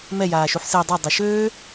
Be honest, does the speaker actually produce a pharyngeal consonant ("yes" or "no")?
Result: yes